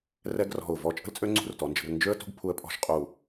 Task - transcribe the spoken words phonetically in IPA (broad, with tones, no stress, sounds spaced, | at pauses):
r ɛ˥ ɡ r ɔ̤˧˩ ʊ̯ v ɔ˧ t͡ʃʼ ə̤˥ l t͡sʼ ø˥ ŋ͡ǀ ṳ˥˧ r t ɔ˩˧ n d͡ʒ ə̤˩˧ r n d͡ʒ ø˥ ə̯ t ṳ˥ ɡ pʰ u˧ ə̯ pʼ ɔ̤˥ ʃ qʼ u˧˩